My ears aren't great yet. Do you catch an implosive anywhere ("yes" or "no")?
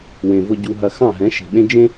yes